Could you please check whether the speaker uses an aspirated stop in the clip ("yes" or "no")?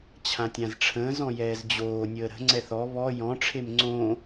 yes